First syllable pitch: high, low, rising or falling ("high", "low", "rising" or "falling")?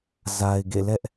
low